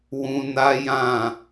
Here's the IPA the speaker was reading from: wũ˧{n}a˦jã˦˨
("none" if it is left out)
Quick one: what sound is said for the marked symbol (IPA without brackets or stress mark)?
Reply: n